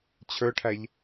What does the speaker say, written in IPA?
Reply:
t͡ɕʰ ə˞ ʈʰ æ ʎ

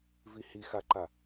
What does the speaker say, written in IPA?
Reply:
v i h i x a ǃ a

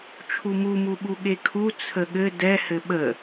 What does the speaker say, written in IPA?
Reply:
t͡ʃʰ u m u m u ɓ u ɠ e kʰ u t͡sʰ ə ɠ ɘ d ɛ h ɘ ɓ ə

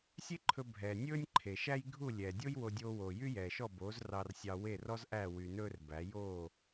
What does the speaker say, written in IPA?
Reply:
sʲ e˥ ǃʰ ɵ˧ bʱ ɛː˩ nʲ ɵː˥ nʲ ǃʰ e˩ ʃ æ˥ j ɡʱ u˥˩ lʲ ɛː˩ dʲ o˥ j w o˧ dʲ oː˧ w oː˩ j y˥ j ɛː˩ ʃ ɔ˥˩ b oː˩˥ z r ɑ˧ r sʲ ɑ˧ w e˥˩ r ɔ˥ z ʔ æ˥˩ w y˧ n ɵː˥ r b æ˩˥ j oː˥˩

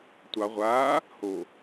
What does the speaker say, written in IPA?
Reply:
tʷ ɑ ʁʷ aː | h o

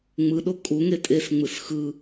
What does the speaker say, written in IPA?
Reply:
ŋ͡m ɯ ɗ o kʼ u ŋ e tʼ e s ŋ͡m ɯ s x ɯ

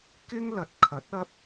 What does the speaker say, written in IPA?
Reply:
k ɪ˥ ŋ l ɐ˨ t̚ kʰ ɐ˨˥ t̚ ɐ˧ p̚

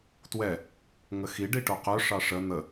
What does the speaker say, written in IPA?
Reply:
t w ɛ | ŋ ə x i ɖ i ʈ o q œ ʂ ɑ ʂ ə n̪ ə

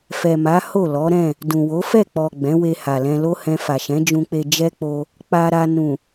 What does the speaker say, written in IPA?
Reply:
f ɛ˨ m a˨˦ h o˦˨ l ɔ˨˦ ɾ ɛ̃˦˨ | d ũ˨ w o˨˦ f ɛ˦˨ k͡p ɔ˨ ɡ͡b ɛ̃˨˦ w e˧ h a˨ l ɛ̃˧ l o˦ h ɛ̃˧ f a˨ ʃ ɛ̃˨˦ d͡ʒ ũ˧ k͡p e˧ d͡ʒ ɛ˦ k͡p o˧ | k͡p a˧ ɾ a˧ n ũ˨

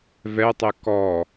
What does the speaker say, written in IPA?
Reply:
v ɛ tˤ e k ɔ

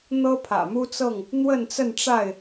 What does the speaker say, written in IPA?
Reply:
n̪ ɤ˦ pʰ ä̰˨˩ m u˦ t͡s ɤ˥˨ ŋ | n̪ w ə˥˨ n t͡s ə˥˨ n ʈ͡ʂ a˥˨ ɪ̯

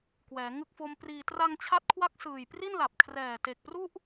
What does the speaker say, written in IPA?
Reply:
k w ɛː˩˦ ŋ ɯ˦˥ k̚ f o˦˥ m p r iː˧ t r a˧ ŋ t͡ɕʰ a˦˥ t̚ kʰ w a˦˥ k̚ s ɯː˨˩ j p r i˥˩ n l a˨˩ p̚ kʰ r ɛː˨˩ t e˨˩ k̚ p r u˥˩ ʔ

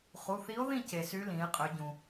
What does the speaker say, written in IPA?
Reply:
χ u˩˧˩ θ i˧˥ o̯ ð ĩ˥˨ c e˩ s y˧˥ l ĩ˩˧ e̯ qʼ ø˩˧ ɟ ũ˩

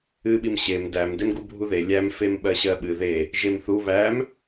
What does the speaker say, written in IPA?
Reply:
ɨ ɓ i m ɕ e m d æ m d e m ɡ u bʱ u ð e lʲ æ m f e m ɓ ɜ ɕ ɜ ɓ ɨ ð e | ʒ e m θ u β æ m

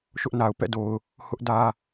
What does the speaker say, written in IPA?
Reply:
ʃ ʊ˦ ʔ n a˨ ʊ̯ p ɛ̰˦˨ d o˨ ʊ̯ | h ʊ˦ ʔ d ä˦

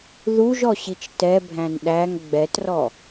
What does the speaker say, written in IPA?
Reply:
ð u ʒ ɔ ɕ i t͡ʃ t ɛ bʱ æ̃ n ɗ æ ŋ ɡ͡b ɛ t r ɔ

